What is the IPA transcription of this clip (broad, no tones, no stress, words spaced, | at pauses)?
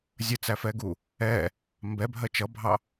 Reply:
zʲət͡sæfɛɡu | ɛ | mbɛ bʱɜt͡ʃʌbʱɑ